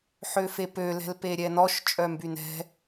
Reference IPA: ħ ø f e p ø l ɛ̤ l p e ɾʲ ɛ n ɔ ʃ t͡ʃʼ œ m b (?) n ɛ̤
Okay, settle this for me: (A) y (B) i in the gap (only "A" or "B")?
A